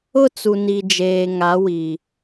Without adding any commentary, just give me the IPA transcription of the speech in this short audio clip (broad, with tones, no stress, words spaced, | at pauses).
ʊ˦˨t͡su˨ ni˨d͡ʒeː˨ ŋa˨˦wi˨